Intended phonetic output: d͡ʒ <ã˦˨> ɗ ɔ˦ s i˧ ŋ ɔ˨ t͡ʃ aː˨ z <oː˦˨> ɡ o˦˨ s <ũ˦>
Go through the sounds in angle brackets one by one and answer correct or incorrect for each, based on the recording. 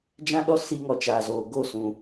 incorrect: ã˦, incorrect: oː˨, incorrect: ũ˨

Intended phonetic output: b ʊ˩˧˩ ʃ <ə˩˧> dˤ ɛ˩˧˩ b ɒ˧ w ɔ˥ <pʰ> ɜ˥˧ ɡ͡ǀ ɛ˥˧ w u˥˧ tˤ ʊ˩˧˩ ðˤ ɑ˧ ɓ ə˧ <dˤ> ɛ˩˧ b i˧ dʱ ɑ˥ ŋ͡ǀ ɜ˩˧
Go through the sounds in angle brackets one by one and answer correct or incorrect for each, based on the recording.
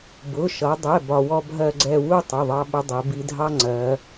incorrect: ʌ˩˧, incorrect: bʱ, correct

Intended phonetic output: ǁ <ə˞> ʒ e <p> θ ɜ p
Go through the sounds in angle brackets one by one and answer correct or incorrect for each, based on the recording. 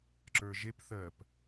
correct, correct

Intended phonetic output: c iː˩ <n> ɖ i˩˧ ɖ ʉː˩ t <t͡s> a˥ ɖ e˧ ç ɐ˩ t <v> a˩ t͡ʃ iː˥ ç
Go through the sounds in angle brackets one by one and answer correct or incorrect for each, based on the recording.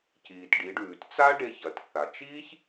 incorrect: t, correct, incorrect: θ

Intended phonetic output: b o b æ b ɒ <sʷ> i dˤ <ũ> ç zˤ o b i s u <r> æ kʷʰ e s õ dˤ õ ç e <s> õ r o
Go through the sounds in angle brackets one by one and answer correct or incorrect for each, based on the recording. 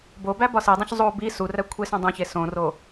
incorrect: s, correct, correct, correct

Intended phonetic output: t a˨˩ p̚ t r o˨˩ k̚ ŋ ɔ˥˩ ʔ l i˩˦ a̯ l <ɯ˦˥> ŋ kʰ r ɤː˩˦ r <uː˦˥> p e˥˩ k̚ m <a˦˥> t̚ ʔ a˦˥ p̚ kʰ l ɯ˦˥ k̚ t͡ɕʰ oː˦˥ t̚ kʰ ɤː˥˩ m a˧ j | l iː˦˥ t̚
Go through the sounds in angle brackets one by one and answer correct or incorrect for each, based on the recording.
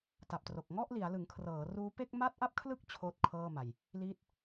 incorrect: ɯ˩˦, correct, correct

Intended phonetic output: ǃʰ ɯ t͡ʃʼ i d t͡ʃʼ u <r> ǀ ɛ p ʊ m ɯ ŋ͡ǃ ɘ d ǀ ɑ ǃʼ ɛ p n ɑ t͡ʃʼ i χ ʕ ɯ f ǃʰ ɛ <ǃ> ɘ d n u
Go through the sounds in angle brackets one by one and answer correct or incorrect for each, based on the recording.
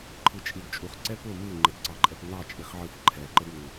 incorrect: χ, correct

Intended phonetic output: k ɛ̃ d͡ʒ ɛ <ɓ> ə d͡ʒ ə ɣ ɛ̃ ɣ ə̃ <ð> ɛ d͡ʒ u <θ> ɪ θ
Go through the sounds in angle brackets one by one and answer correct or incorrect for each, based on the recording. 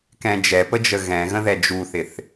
incorrect: p, correct, correct

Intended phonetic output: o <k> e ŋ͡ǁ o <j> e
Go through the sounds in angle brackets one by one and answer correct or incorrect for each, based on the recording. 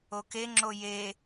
correct, correct

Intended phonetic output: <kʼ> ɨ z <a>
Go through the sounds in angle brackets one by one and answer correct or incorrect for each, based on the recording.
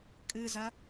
correct, incorrect: ɐ

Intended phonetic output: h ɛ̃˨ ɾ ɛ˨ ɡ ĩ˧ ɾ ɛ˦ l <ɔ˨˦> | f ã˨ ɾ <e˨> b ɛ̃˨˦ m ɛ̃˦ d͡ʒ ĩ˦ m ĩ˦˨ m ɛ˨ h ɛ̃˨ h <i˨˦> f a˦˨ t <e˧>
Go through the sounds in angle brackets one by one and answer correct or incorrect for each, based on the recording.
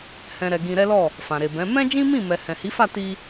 incorrect: ɔ˦˨, correct, correct, incorrect: i˧

